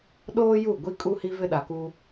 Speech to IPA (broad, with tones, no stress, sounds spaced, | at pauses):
ɗ oː˦ j u˦˨ ɡʷ i˦ kʼ u˦ h i˦ v ɪ˦ ɗ a˨ k u˦